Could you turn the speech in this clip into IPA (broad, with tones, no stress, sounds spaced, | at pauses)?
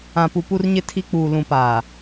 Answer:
ã˨ p u˨ p u˨ r ɲ ɪ˨ tʰ i˨ k͡p uː˨ l ũ˨ p aː˨